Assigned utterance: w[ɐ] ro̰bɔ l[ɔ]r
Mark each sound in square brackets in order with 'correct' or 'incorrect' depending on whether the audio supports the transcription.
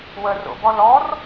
incorrect, correct

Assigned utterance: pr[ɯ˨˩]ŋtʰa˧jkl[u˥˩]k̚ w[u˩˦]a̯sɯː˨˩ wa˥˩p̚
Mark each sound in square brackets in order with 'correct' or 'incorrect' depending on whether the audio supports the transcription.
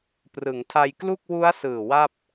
incorrect, correct, incorrect

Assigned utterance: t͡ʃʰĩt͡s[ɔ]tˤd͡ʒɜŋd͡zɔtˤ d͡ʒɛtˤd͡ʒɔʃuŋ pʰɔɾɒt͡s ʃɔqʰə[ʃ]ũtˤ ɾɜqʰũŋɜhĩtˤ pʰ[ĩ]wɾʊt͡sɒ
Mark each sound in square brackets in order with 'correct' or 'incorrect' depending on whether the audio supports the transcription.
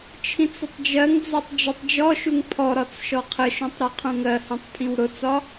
incorrect, correct, correct

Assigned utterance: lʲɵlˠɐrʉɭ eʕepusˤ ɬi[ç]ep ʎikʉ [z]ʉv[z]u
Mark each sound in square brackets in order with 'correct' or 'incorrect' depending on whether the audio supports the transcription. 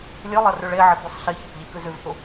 correct, correct, incorrect

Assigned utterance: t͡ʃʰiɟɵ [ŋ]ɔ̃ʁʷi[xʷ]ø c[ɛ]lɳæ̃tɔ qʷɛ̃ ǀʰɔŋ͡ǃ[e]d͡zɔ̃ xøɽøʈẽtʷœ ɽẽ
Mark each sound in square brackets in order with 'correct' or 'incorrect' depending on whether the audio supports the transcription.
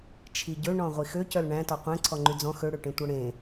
incorrect, incorrect, incorrect, incorrect

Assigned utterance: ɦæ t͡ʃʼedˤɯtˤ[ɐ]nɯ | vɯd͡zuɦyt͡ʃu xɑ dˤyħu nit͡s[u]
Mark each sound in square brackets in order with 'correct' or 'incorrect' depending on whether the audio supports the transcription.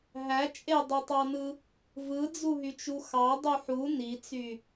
incorrect, incorrect

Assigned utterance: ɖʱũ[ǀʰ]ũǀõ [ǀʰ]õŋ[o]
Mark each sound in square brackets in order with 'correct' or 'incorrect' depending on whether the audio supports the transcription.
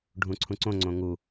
correct, incorrect, incorrect

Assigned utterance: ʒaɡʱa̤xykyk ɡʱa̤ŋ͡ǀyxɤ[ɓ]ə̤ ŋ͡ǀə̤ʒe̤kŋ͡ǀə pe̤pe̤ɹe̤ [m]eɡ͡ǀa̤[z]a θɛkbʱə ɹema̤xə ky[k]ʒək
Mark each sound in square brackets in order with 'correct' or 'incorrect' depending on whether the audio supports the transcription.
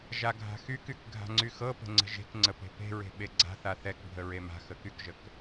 incorrect, incorrect, incorrect, correct

